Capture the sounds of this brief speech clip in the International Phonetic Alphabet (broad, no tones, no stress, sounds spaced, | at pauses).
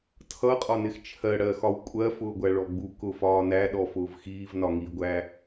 tʰ ʌ qʼ ɒ n ɪ x t͡ʃʰ ɜ ɽ ɜ x ɒ w kʷʼ ɜ f ʊː ɡʷ æ ɭ ɔ ɡ͡b u k ʊ f ɒː n æ ɗ ɔ f ʊː v x iː v n ɒ ŋ iː ɡʷ æ